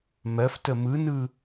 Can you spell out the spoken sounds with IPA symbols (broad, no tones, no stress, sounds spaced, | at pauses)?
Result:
m ɜ f t ə m ɯ n ɯ